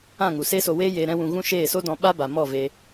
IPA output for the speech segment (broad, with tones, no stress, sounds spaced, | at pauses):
ã˦˨ ŋ u˨ s e˦ s o˧ w eː˦ j eː˨ ɾ ɛ̃˧ w ũ˨ ɣ ũ˦ ʃ eː˦˨ s o˦ d ɔ̃˧ ɓ a˦ b a˨ m ɔ˦˨ v e˧